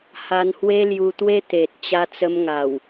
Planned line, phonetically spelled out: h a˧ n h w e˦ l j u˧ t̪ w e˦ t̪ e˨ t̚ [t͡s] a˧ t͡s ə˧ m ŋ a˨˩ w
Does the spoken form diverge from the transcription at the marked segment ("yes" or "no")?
yes